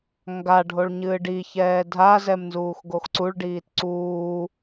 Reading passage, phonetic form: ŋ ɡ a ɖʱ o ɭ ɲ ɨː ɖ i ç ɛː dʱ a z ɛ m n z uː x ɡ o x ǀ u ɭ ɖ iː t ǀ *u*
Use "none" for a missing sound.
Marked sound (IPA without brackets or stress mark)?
uː